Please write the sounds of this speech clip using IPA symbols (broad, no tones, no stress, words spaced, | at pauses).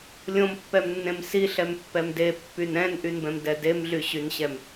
lʲõmpːɛmnːẽm siɬɛmpːɛm depːyn ɛ̃nʔynbɛ̃mdɛ demɮyɕynɕɛm